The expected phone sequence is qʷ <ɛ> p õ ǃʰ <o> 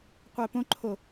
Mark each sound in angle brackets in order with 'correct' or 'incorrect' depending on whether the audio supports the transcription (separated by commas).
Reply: correct, correct